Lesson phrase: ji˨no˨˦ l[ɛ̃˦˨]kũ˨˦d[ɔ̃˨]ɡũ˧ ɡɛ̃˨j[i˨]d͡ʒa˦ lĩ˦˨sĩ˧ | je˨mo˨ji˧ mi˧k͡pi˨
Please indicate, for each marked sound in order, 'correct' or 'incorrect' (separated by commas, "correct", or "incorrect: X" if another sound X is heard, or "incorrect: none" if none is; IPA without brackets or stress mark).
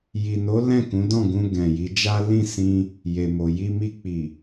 correct, incorrect: ɔ̃˦˨, incorrect: i˨˦